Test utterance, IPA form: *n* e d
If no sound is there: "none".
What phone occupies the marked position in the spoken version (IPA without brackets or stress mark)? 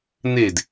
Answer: n